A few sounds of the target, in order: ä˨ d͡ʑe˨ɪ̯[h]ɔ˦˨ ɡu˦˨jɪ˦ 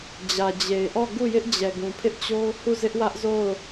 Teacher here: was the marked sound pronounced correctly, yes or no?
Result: no